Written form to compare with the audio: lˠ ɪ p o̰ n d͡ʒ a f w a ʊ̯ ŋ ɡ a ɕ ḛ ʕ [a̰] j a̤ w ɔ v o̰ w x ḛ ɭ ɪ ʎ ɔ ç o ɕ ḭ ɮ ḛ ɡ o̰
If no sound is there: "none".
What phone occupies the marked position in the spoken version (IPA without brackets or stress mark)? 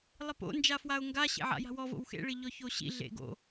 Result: a̰